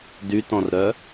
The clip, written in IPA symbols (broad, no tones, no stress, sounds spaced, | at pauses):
d y t ɔ̃ r ɾ œ